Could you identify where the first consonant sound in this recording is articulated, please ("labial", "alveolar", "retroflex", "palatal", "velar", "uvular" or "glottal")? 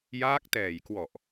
palatal